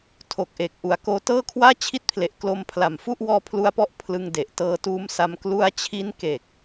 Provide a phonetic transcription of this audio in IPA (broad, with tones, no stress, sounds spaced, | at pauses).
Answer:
tʰ o˨˩ k̚ ʔ e˨˩ k̚ ʔ u˩˦ a̯ k oː˧ t ɤː˥˩ kʰ w aː˥˩ t͡ɕʰ i˦˥ t̚ pʰ l e˨˩ ʔ k l o˧ m pʰ l a˨˩ m f u˥˩ ʔ w ɔː˦˥ pʰ l u˧ a̯ p ɔ˦˥ ʔ pʰ l ɯ˧ ŋ d e˨˩ ʔ t ɤː˧ t uː˦˥ m s a˧ m k l u˧ a̯ t͡ɕʰ i˦˥ n k e˨˩ k̚